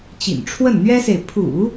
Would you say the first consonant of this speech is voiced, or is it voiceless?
voiceless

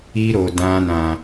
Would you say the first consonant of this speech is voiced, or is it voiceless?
voiced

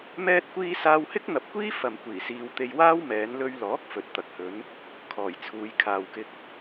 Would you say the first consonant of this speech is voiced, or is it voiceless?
voiced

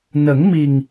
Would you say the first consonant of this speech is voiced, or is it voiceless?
voiced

